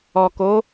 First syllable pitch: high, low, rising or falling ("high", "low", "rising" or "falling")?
low